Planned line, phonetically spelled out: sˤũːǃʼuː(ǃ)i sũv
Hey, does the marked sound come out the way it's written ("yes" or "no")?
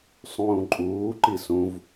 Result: yes